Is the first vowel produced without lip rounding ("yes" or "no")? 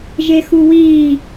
yes